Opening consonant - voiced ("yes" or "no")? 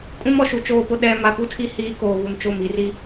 no